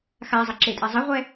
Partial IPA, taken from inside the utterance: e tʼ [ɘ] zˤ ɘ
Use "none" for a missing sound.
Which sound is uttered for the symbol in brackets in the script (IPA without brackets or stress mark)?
ɛ